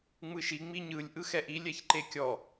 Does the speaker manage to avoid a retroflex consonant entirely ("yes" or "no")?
yes